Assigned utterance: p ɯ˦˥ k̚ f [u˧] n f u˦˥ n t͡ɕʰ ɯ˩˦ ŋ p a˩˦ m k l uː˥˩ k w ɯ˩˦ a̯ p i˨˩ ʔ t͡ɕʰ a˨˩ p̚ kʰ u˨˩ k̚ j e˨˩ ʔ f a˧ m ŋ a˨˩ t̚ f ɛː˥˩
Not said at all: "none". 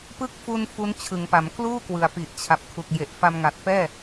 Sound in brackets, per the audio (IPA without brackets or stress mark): u˧